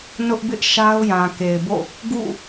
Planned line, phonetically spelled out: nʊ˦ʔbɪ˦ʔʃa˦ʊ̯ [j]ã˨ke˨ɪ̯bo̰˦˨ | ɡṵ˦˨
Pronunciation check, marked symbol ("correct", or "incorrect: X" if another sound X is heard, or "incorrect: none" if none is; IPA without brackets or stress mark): correct